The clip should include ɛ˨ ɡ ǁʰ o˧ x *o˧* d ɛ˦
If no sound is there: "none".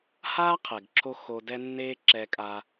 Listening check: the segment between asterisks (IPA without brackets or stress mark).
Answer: o˧